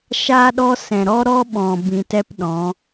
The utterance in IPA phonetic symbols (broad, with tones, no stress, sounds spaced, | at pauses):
ʃ aː˦ ɗ ɔ˦ s ɛ̃˨ ɾ ɔ˦ ɾ ɔ˦ ɓ ɔ̃˨ b ĩ˧ t ɛ˦ p ɗ ɔ̃˨˦